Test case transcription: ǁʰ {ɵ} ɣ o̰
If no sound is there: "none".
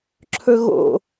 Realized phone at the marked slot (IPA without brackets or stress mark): ɵ